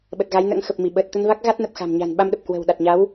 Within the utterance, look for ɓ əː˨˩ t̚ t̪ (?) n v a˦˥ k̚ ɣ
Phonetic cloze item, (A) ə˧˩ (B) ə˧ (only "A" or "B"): B